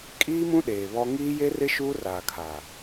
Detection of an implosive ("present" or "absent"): present